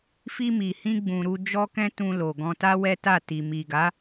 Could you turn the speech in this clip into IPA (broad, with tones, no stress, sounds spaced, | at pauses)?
f i˧ m i˨ h ĩ˧ ɡ͡b ũ˨ ɾ u˧ d͡ʒ ɔ˦ k ɛ̃˦ t ũ˧ l o˨ ɡ ɔ̃˧ t a˦ w ɛ˦ t a˦˨ t i˨ m i˨ ɡ a˨˦